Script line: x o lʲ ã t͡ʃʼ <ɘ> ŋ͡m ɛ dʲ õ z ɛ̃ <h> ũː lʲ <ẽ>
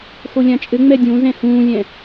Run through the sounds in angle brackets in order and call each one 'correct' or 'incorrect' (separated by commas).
correct, correct, incorrect